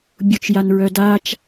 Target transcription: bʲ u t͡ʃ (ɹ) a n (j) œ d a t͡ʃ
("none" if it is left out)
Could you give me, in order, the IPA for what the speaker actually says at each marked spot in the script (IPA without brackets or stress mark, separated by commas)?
j, ɹ